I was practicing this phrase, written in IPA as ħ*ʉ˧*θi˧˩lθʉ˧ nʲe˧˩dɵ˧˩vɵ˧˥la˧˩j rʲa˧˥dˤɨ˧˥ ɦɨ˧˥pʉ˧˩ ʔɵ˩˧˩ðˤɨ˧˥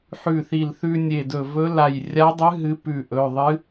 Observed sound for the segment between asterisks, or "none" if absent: ʉ˧˩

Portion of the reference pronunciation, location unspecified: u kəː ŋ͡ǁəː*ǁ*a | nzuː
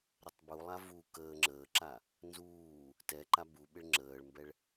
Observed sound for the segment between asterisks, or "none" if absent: ǁ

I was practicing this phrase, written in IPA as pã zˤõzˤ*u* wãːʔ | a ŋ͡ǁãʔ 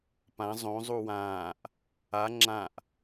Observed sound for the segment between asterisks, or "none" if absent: u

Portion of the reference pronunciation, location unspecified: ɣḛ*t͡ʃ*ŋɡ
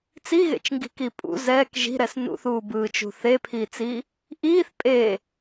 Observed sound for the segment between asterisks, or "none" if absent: t͡ʃ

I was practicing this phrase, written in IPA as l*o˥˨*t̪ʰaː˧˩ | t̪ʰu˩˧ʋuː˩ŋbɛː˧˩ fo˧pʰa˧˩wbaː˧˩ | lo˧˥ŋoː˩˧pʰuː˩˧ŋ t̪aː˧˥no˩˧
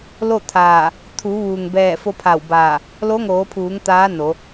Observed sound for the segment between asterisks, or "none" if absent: o˥˨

